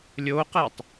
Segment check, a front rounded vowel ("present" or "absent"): absent